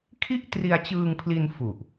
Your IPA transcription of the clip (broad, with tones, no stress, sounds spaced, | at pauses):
kʰ i˥˩ ʔ t r i˧ a̯ t͡ɕ ɯː˧ ŋ pʰ l i˧ n f u˨˩ ʔ